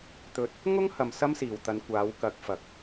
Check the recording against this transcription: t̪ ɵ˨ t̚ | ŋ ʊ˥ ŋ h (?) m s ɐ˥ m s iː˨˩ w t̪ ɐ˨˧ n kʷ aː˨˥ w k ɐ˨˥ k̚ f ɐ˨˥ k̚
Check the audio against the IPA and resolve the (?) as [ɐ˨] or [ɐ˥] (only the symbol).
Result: ɐ˨